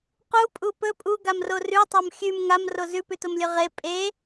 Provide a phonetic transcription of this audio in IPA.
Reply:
qupʼu pɵ pʼuɡamro rʉtˤom xʲʉm ŋamro zʉpʉtomlʲɵ ʁe pʼe

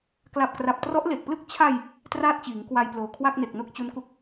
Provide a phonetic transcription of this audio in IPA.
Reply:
kla˨˩p̚kra˨˩p̚ trɔ˦˥ʔle˨˩k̚plɯ˥˩k̚ t͡ɕʰa˧j | traː˥˩t̚t͡ɕiː˩˦ŋkwa˧jploː˨˩ kʰwa˥˩k̚ne˨˩k̚no˥˩k̚ t͡ɕu˦˥nku˦˥k̚

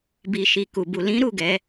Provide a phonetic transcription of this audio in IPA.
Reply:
bi˨ʃi˨ ku˨bu˨ lĩ˨˦ɾu˦˨ ɡɛ˨˦

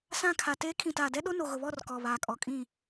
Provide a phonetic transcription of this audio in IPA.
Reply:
sã˦˨kʰa˨teː˦ kʰĩ˨taː˨dɛ˦ɗo˦ no˨ɣʊ˨βɔ˦˨r kɔ˨βaː˨kʼɔ˨kʼĩ˦˨

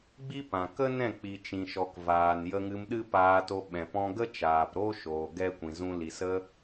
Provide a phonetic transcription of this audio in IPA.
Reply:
ɡ͡bi˦pã˨ kə˦nɛ̃˦˨ k͡pi˨t͡ʃĩ˨ʃɔ˨k vaː˨njə˧ŋɨ˧m ɗɨ˦paː˧to˧ ɓɛ̃˨pɔ̃˧ɡə˦ t͡ʃaː˨pɾo˦ ʃoː˨ɡɛ˧kʷĩ˨ zũ˦li˧ sə˧

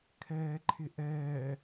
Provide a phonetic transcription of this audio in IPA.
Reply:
kʰɛːǃʰɪʔɛː

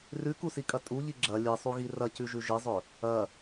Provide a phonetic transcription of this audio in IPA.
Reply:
rʉkusikʼɐ tʼuʎi ɡ͡ǁɐ lʲɨsˤuɣi rɐcʉʒʉ ʒɨzˤɵ | ɐ

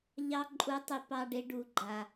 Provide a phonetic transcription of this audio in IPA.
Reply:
ʎɑ˦ ǃʼu˦tˤi˦pɑ˦ɖe˦ ɖu˨ɡ͡ǃa˨

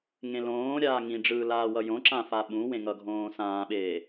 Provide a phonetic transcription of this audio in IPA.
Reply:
ŋẽlõːɾʲaː ŋĩɖ͡ʐɯː laːwʌjõǁã faɓũwẽ ŋʌɡʱõːsãːɓeː

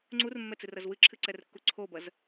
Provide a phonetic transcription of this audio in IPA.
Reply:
ŋ͡ǀurmːɛt͡sɨrɐz wɨǁʰɨǀɛrkːu ǀʰobɐz

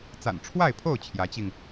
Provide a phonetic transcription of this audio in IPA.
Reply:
t͡sa̰˨˩n ʈ͡ʂʰwa˥˨ɪ̯pʰo˥˨ʊ̯ t͡ɕʰjä˨˦t͡ɕi˧ŋ

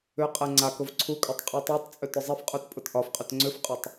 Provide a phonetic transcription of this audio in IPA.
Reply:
ʏqʼɛ ŋ͡ǀakʊv ǀʰukʼʏtˤ qʼutˤetˤt͡sʼʏ tʊzˤɛfqʼut pʼʊtʔɒfqʼʏt ŋ͡ǀʏfqʼʊtˤ

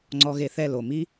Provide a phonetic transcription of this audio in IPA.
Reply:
ŋ͡ǀɔ˧ɣe˧θɛ˦˨ lo˨mi˦

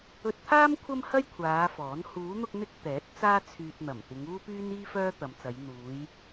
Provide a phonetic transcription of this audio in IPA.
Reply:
ɵ˧t̚t̪ʰaː˥m kʷʰɐ˥mhɐ˥j kʷʰaː˨˧ fɔː˨˥n huː˨˧n̪ʊ˧k̚n̪ɪ˧k̚ t̪ɛː˨˥t̚ t͡saː˥t͡sʰyː˧t̚ n̪ɐ˨˩m t̪ɪ˨˧ŋuː˥pyː˥niː˥ fœː˥t̪ɐ˨˧mt͡sɐ˨˧j n̪uː˨˧j

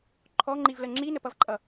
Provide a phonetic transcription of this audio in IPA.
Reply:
ǃʰɔŋ͡ǃivlə ŋ͡ǁinəpʌvǃʼʌ

